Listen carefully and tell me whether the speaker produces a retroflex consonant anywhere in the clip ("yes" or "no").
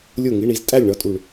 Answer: yes